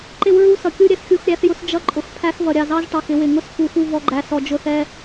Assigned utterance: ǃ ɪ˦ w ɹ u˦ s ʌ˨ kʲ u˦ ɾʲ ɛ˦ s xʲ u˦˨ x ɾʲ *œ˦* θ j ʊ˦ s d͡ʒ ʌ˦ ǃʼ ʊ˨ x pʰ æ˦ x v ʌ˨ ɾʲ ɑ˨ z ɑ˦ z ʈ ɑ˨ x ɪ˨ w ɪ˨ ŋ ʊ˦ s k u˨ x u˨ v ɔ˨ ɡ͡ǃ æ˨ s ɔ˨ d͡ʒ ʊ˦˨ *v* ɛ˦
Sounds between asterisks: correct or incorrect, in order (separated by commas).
incorrect, incorrect